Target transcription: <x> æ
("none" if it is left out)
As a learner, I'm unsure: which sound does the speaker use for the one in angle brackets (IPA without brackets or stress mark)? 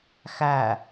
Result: x